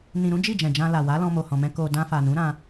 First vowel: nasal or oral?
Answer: nasal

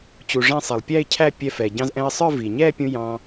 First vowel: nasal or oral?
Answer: oral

